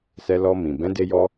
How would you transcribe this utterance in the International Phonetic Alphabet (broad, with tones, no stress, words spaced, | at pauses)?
sɛ˧lɔ˧mĩ˨ bɛ̃˨˦de˧jɔ˧